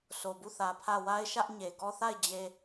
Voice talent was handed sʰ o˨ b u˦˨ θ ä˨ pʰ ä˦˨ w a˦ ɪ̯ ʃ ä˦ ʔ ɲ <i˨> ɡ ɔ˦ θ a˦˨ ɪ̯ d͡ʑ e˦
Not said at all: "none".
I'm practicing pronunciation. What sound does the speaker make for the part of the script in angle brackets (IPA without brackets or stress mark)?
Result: e˨